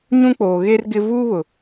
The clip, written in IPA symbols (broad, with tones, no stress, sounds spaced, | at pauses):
ɲ ũ˦ k͡p oː˨ ɣ e˦ r ɡ ɪ˦ v uː˦ β ʊ˨